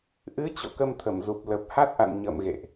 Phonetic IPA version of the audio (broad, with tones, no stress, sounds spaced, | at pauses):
ʔ ɨ˨˦ t͡ɕ o̰˧˨ k ə˧ m t̪ʰ ə˧˩ m z u˨˩ p̚ l ə˨˩ p̚ h a˦˥ t̚ ʔ a̰˧˨ n ɲ ə̰˧˨ m ɣ ḛ˧˨ ʔ